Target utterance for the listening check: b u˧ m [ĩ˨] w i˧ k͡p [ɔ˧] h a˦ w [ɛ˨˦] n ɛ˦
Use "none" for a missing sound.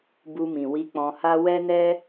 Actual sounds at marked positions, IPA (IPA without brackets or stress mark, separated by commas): ĩ˨, ɔ̃˧, ɛ˦